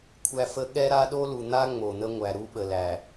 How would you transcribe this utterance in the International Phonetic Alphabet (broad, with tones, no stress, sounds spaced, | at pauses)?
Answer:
kʷʰ æ˦ f ə˦ ɠ ɛ˦ ɾ a˦ ɗ o˦ l u˨ n̪ a˦ ŋ͡m o˨ n̪ ə˦ ŋʷ æ˨ ɾ u˦ ɓ ə˨ l æ˨